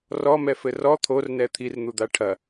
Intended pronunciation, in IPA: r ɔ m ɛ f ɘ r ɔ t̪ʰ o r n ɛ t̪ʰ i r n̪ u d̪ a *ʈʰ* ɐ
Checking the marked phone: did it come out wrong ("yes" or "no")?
no